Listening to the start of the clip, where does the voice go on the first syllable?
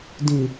low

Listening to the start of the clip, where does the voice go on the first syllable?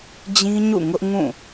high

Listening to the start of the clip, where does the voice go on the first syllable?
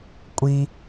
low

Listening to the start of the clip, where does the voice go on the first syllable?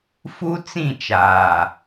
high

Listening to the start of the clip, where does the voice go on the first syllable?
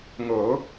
rising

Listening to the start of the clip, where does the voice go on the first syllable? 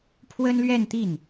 high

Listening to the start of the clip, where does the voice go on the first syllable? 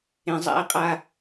low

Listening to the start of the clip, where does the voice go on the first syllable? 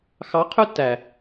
rising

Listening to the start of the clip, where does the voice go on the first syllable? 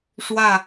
falling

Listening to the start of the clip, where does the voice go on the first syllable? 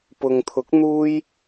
low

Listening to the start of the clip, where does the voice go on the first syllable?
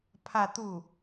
falling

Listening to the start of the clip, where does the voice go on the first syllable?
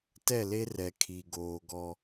falling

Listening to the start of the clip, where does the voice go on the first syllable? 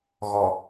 low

